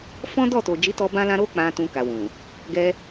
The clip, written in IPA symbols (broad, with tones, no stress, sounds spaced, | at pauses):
f ɔ̃˦ d ɔ˦˨ t o˨ d͡ʒ i˨˦ t ɔ˧ b ã˦ l ã˦ ɾ o˦ k͡p ã˧ t ũ˧ k a˨ w ũ˨ | ɡ ɛ˧